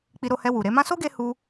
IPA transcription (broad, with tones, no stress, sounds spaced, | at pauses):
k͡p i˧ ɾ o˧ h ɛ˧ w u˨ ɾ e˨˦ m ã˦ s o˦ ɡ e˧ h u˧